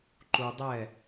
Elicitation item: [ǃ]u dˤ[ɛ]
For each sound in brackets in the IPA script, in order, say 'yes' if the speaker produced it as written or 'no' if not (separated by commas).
yes, yes